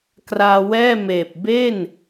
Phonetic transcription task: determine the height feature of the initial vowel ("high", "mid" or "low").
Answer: low